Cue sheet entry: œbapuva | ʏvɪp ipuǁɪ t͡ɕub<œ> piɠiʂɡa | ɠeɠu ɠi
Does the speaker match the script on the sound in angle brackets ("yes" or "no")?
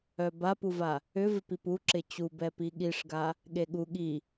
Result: no